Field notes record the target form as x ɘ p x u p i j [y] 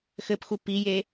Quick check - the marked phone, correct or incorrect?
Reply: incorrect